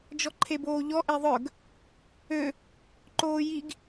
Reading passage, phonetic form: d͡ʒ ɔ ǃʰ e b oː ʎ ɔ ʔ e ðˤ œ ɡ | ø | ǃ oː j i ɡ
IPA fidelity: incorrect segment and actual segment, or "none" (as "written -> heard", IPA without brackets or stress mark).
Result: none